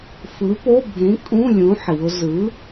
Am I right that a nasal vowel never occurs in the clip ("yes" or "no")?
no